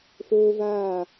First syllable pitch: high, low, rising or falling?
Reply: high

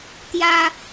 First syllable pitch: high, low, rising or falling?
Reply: high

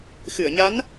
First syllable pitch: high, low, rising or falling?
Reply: low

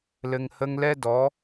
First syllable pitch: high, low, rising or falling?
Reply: low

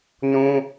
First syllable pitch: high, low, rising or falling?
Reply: high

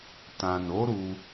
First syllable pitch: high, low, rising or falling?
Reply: low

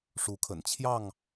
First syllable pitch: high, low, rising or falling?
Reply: rising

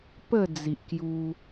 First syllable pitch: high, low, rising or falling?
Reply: falling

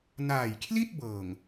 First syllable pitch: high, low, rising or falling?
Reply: low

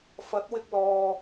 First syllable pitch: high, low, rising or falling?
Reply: rising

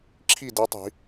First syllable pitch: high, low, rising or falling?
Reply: falling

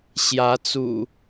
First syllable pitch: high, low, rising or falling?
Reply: rising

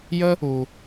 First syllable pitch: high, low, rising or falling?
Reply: high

